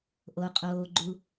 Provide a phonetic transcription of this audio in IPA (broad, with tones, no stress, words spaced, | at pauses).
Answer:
ʔo˩qʼoː˩ ɡ͡ǃu˩